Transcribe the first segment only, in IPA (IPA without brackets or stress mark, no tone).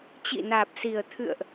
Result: t͡ɕ